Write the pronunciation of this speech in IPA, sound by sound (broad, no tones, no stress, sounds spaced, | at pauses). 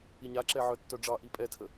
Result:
i ɲ a ǁ ɛ ʕ œ tː œ ɖ͡ʐ ɑ ʔ i pʼ ɛ tʰ ə